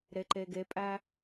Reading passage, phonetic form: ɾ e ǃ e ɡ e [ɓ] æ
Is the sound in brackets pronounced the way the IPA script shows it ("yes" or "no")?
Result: no